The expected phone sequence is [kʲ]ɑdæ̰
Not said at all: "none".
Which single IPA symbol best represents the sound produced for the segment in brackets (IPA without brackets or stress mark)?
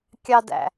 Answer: kʲ